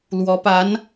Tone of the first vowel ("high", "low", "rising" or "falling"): rising